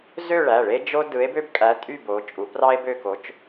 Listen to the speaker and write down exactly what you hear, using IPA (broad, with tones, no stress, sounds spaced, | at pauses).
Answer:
z ø˥˧ ɭ æ˩˧˩ ɭ e˥ d͡ʒ o˥ d ɯ˧˥ e̯ b ø˥ b kʼ æ˧˥ tʼ y˥˧ b o˧˥ t͡ʃʼ u˧˥ p r ɑ˥ e̯ b ø˥˧ k o˧˥ t͡ʃ